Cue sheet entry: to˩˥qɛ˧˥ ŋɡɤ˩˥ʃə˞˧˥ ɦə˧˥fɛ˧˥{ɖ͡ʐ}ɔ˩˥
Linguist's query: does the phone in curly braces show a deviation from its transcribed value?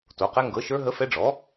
no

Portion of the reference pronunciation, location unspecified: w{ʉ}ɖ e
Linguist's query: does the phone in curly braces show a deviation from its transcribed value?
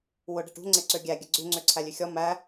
yes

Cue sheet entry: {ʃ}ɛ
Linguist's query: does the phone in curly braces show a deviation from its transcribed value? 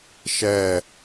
no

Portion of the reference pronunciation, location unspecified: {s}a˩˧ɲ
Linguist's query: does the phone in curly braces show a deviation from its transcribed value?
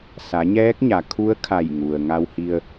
no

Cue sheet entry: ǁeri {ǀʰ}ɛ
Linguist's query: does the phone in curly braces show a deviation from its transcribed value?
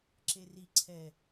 no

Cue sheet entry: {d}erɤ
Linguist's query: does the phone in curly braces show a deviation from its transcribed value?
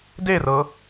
no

